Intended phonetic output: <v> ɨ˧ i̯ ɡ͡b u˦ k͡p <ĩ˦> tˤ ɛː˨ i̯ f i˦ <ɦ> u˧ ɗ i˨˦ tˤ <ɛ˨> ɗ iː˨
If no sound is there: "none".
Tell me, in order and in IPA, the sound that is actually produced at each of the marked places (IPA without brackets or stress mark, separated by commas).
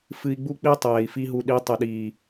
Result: f, i˦, ɦ, ɛ˨